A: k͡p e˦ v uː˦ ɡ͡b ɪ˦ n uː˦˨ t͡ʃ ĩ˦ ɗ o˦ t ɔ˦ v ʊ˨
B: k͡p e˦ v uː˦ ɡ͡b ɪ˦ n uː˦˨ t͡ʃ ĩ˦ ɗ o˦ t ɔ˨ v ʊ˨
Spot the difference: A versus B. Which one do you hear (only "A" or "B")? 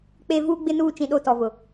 B